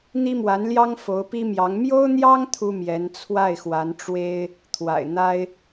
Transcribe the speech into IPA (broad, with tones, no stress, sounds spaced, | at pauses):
n̪ i˥ m w a˧˥ n l j ɑ˥ ŋ f o˧˥ ʊ̯ p i˥ m j ɑ˧˥ ŋ m j o˥ ʊ̯ n̪ j ɑ˥ ŋ t̪ʰ u˥ m j ɛ˧˥ n t͡sʰ w a˥˩ ɪ̯ x w a˧˥ n ʈ͡ʂ w e˥ ɪ̯ | t̪ʰ w a̰˨˩ ɪ̯ n̪ a˥ ɪ̯